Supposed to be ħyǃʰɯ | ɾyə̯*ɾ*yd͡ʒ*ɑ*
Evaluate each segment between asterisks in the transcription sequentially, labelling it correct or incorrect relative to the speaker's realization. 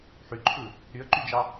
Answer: incorrect, correct

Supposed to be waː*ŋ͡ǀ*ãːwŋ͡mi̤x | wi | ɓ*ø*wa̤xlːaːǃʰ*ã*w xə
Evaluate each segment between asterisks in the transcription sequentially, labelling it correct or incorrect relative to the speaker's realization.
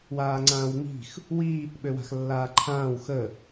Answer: correct, correct, incorrect

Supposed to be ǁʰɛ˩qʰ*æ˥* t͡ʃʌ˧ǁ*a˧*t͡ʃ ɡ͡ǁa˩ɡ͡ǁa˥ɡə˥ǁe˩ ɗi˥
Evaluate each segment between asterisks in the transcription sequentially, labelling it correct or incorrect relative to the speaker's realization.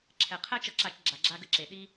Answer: correct, correct

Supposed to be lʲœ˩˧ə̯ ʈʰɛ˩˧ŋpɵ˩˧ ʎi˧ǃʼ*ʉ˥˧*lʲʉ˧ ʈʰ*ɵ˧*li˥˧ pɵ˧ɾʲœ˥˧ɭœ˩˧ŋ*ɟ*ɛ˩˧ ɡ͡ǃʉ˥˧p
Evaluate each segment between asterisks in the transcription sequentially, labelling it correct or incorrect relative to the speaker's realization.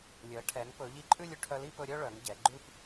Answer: correct, incorrect, correct

